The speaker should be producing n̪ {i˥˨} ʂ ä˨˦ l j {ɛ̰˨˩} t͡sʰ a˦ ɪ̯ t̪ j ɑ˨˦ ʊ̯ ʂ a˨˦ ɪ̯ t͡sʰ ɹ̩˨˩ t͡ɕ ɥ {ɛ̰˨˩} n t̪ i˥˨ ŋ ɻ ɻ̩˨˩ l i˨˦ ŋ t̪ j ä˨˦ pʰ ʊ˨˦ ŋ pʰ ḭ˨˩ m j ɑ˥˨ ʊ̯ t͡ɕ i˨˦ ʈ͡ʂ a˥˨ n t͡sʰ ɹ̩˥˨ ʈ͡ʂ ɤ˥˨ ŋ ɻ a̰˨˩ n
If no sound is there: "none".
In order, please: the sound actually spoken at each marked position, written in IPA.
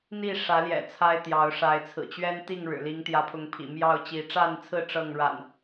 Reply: i˥˨, ɛ̰˨˩, ɛ˦

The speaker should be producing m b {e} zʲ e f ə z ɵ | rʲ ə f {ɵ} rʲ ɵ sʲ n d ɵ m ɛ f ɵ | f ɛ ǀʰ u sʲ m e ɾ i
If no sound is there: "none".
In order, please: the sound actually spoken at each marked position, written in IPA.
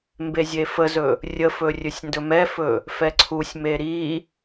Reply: e, ɵ

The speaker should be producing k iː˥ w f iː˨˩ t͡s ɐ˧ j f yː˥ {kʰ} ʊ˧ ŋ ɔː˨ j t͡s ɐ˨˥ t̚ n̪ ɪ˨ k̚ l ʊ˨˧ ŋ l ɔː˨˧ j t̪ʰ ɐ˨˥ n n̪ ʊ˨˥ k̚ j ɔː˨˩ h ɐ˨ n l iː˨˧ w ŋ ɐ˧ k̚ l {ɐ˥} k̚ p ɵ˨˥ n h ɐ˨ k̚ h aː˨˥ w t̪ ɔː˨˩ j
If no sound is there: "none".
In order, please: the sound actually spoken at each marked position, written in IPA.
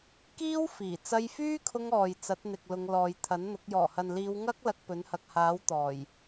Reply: kʰ, ɐ˧

